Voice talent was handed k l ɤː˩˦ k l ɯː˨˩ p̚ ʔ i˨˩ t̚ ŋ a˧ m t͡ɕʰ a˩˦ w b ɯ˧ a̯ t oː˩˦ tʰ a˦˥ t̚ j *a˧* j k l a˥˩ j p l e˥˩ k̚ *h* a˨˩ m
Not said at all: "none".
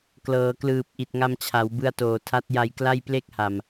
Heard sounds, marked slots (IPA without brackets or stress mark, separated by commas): a˧, h